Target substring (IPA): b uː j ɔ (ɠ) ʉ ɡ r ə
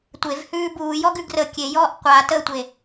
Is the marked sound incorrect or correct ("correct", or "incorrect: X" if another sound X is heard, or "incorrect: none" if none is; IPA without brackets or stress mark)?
incorrect: ɡ